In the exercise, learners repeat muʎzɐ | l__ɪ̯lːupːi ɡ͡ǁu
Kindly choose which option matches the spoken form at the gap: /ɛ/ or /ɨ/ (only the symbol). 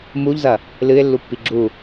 ɨ